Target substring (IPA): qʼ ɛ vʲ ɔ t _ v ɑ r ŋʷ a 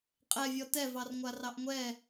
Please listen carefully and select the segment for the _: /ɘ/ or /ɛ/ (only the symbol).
ɛ